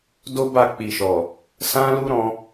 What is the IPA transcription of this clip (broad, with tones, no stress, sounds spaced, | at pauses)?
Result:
d o˦ b a˦˨ k͡p i˨ ʃ ɔ˨ | s ã˦ l u˦ ɾ ɔ̃˦